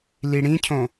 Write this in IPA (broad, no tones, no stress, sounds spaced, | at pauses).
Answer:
l i ɽ ĩ cʰ õ